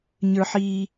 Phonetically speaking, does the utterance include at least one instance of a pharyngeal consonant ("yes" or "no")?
yes